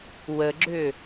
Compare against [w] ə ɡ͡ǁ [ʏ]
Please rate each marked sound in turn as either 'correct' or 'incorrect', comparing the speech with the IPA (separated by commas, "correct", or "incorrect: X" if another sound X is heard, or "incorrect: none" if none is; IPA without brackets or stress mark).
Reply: correct, correct